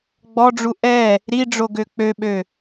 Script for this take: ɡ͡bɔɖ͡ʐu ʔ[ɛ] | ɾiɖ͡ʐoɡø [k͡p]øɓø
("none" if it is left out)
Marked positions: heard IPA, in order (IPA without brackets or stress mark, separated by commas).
ɛ, k͡p